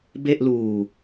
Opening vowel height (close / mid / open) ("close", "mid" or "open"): mid